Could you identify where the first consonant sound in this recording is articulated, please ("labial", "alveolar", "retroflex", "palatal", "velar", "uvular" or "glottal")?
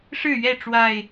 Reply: retroflex